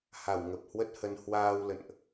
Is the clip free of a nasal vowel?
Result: yes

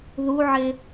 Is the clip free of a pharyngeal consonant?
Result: no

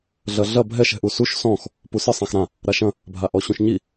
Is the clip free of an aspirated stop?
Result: yes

